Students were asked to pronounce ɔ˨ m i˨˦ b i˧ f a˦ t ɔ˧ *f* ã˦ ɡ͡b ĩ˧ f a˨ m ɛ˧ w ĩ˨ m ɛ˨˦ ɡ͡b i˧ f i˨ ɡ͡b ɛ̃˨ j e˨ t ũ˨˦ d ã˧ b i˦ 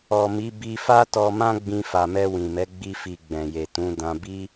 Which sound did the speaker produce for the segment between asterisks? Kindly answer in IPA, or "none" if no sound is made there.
m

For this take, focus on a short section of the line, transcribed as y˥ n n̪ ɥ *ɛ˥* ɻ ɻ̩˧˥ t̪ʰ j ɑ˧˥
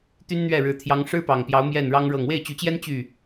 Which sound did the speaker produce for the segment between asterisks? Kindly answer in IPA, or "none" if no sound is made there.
ɛ˥˩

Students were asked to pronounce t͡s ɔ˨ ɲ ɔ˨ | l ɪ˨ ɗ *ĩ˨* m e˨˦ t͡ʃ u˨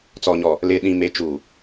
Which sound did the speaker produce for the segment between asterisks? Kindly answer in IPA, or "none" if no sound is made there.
ĩ˨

